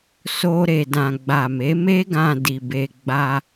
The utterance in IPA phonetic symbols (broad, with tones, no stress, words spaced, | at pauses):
so˧ ɾe˨dã˨ ɡ͡ba˨me˨˦me˦ɡã˧ di˨ be˧ ɡ͡ba˧